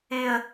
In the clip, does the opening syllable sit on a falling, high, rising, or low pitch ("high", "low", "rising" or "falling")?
high